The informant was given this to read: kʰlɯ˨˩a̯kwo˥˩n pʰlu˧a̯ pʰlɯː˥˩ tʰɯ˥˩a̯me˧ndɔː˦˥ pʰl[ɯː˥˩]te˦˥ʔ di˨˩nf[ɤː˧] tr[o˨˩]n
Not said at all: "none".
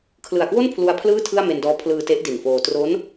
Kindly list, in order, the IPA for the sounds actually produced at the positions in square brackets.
ɯː˧, oː˧, o˦˥

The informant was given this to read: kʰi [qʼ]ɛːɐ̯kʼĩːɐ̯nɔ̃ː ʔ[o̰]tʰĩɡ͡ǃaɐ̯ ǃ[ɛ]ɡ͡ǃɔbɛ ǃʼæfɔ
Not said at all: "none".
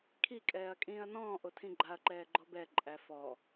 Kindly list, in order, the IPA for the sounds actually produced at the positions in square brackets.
kʼ, o, ɛː

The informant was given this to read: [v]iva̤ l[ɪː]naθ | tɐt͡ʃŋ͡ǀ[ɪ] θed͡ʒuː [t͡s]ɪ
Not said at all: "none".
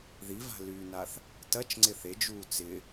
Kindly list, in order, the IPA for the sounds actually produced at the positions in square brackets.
ð, yː, ɪ, t͡s

